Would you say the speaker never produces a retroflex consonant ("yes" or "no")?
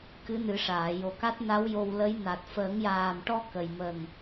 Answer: no